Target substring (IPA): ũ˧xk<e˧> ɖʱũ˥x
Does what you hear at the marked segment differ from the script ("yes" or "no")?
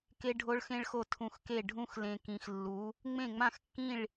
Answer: yes